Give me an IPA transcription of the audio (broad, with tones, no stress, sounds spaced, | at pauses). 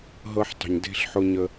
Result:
ɦ ɤ˦ ħ tˤ ə̤˨ ɲ d e̤˦ ɬ ħ ʊ˦ ɲ ə˦